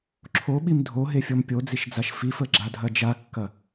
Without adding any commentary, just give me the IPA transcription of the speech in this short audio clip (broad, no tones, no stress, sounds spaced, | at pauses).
ǁʰ o ɓ i m dʱ o ɦ e fʲ ɔ m pʲ o d͡z i ʃ d͡z a ʃ f i f ə ɡ͡ǁ a dʱ ɐ d͡ʒ a kː ɐ